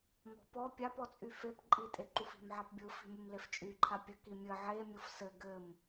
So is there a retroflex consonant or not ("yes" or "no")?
no